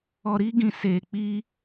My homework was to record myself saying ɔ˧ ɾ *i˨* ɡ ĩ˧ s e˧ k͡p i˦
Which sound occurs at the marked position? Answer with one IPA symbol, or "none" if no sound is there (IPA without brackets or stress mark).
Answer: i˦